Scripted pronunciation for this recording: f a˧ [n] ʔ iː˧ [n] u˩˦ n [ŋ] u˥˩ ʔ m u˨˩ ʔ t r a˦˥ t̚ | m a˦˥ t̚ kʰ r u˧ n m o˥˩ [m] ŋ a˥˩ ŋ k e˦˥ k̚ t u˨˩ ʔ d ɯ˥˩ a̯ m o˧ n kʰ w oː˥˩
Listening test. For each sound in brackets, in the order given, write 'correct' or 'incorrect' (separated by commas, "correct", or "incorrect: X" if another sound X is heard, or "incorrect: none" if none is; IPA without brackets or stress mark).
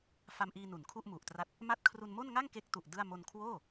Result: incorrect: m, correct, incorrect: kʰ, incorrect: n